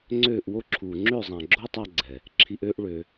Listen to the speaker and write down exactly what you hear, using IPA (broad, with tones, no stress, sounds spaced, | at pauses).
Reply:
ŋ͡ǀ øː˦˨ ʔ w o˦ ǁʰ uː˨ ŋ͡ǁ ø˦˨ zˤ ã˨ ɡ͡ǁ o˦ tˤ a˧ ɡ͡ǀ ɛ˨ | ǁʰ i˧ ʔ øː˦ ʔ ɭ øː˧